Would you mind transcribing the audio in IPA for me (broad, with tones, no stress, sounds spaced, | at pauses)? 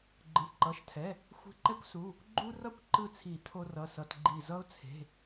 ɡ͡ǃ ɯ˩˧˩ ǃ ʌ˩˧˩ ʃ tʰ ɛ˩˧˩ | xʷ e̤˧˩ ǃ ɛ˦ kʷ s u˩˧˩ | ɡ͡ǃ u˦ r ʌ˦ kʷ ǃ ɯ˧˩ t͡sʰ i˨˩˦ tʰ o˦ r ʌ˩˧˩ s ʌ˩˧˩ t ɡ͡ǃ i˧˩ z ʌ˦ ʊ̯ t͡sʰ e̤˩˧˩